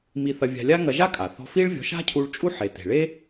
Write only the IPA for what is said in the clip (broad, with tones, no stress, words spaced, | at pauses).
mi˧θɐ˧vʲa̤˧lʲa˥ ŋɐ˧ʒa˥kʼa˩θɔ̤˧ fi˥ɭvʲɔ̤˧ ʃa̤˥cʰu˧ɭ t͡ʃʼu˥ħe˩ te̤˩ɭe˥